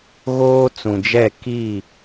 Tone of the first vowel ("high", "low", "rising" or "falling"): high